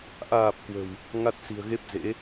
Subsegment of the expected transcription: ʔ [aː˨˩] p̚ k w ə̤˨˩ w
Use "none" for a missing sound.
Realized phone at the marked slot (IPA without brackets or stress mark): aː˨˩